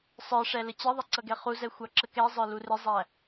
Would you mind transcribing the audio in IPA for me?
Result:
sˤ ə˞ ʂ ɛ l ə t͡ɕ ɪ ðˤ ʌ ǀ ʌ ɡ ɛ χ u z ɛ xʷ ɑ ǁ ə k ɛ zˤ ə˞ l u r ɪ zˤ æ

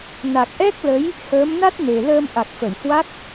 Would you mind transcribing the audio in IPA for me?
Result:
n a˨˩ k̚ ʔ ɛ˦˥ k̚ l ə˨˦ j | h əː˨˦ m n a˦˥ t̚ n e˨˩ l əː˧ m ʔ a˨˩ k̚ f ə˧˩ j h w a˦˥ k̚

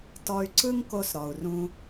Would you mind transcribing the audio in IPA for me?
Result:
t ɔ˧ y̯ ǀ ɯ˦ ŋ k o˧ s ɾ ɔ˨ u̯ r ũ˧

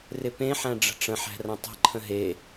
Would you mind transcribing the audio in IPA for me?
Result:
r ɪ p ẽ ħ æ̃ ɖ͡ʐ ə̤ ʈ͡ʂ ə̃ ħ æ̤ r ə̃ tˤ ə̤ ǃʰ ə̃ ɦ e

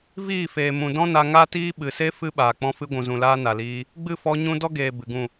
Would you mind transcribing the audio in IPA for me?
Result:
v iː˦˨ f eː˨ m ũ˨ d ɔ̃˦ n a˧ ŋ a˦ t iː˦ ɓ ɨ˨ s e˦ f ɨ˦ ɓ aː˨ k͡p ɔ̃˧ f ɨ˧ ɡʷ ũ˨ z ũ˨ l aː˧ n a˨ l iː˧ | ɡ͡b ɨ˦˨ f ɔ˧ ɲ ũ˦ d ɔ˦ ɡ eː˨ b ɨ˨ ɡ ũ˦˨

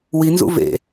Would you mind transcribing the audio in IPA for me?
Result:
w i n z ṵ v ḛ

